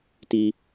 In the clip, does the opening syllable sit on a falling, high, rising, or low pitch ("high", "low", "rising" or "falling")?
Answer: high